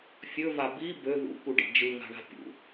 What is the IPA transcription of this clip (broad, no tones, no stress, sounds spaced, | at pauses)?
fʲ ɵ v a b i b ø ð ṵ k u ɖ ḭ d͡ʒ ɯ ŋ a̤ ɳ a̤ pʲ ṵ